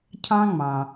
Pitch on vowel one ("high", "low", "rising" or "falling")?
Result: high